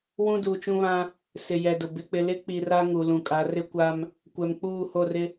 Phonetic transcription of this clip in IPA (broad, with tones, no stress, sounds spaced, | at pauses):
w ũ˦ d uː˨ t͡ʃ ũ˦ β ã˦ | s ɪ˨ j ɛ˨ d ʊ˨ b ɪ˨ k͡p ɪ˨ l ɪ˦ k͡p i˨ r a˦ ŋ u˨ l ũ˨ kʼ a˨˦ r ɪ˦ kʷ a˦ m | kʷ ɛ˨ m k͡p uː˦˨ h o˦˨ r ɪ˦